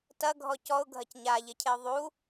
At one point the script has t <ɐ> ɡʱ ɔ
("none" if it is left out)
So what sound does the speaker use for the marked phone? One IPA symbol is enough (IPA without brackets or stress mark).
ɐ